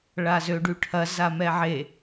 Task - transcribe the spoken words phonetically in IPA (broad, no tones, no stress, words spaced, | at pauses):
ɭazøɖyʈʰɐ zamɛʕe